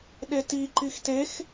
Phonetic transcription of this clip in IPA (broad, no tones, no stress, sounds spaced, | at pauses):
ɗ e t i ǃ i x t e x